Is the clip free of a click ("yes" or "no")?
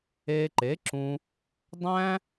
no